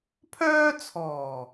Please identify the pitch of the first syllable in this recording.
high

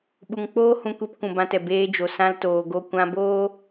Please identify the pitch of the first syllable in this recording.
low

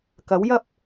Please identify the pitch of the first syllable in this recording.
rising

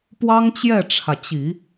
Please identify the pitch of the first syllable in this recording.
high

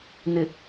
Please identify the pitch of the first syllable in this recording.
low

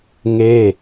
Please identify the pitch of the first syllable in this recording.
falling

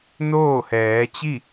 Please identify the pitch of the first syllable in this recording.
falling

